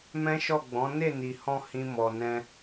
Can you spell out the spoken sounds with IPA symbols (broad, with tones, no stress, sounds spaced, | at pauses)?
m ɛ̃˦ ʃ ɔ˦˨ ɡ͡b ɔ̃˨˦ n e˦˨ n i˨ h ɔ̃˧ h ĩ˦ m ɔ˧ n ɛ̃˧